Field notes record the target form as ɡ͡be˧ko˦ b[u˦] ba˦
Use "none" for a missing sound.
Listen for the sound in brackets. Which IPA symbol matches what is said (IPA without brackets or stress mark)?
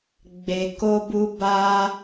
u˦